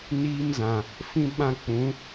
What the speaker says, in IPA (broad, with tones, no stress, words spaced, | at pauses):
niː˦mzã˨ | fĩ˦ ɓã˦k͡pũ˨˦